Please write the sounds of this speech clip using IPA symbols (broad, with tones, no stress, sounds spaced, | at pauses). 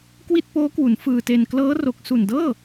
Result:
k w i˥˩ t̚ p oː˦˥ k w u˩˦ n f ɯː˧ t e˧ n k l ɤː˦˥ r o˨˩ k̚ s u˨˩ n d ɤː˥˩